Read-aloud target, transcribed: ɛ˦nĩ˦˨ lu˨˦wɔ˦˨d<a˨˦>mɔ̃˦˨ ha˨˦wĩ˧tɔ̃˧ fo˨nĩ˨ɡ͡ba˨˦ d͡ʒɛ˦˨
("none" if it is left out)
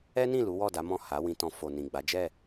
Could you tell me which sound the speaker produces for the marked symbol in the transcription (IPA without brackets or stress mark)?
a˨˦